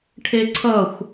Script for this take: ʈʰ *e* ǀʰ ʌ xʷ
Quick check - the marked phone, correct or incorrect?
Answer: correct